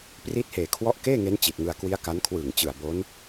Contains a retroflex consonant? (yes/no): no